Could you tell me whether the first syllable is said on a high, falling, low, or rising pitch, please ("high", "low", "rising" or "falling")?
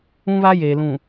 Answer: high